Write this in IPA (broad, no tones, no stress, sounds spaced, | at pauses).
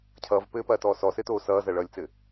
cʰ ʌː v p ɘː p ɐː t ɔː s ɔ s ɘ t oː s ʌː z ɐ ɭ ʌː lʲ t͡s ɘ